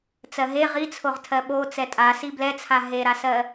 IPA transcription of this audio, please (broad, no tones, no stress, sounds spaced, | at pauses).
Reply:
t͡s ɜ ɦ e ʁ i t͡sʰ o ʁ tʰ ɜ ɓ o t͡s ɛ tʼ a s i b l ɛ t͡sʰ a ɦ e ɾ a s ɜ